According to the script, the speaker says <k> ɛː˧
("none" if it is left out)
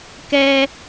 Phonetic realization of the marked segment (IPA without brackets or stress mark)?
k